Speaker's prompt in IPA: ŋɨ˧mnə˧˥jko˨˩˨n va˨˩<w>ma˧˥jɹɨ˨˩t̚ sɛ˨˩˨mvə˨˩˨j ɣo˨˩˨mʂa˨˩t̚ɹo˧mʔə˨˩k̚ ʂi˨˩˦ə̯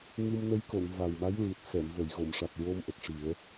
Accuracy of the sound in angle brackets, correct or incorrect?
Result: correct